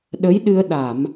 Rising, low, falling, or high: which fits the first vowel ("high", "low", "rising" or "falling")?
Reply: rising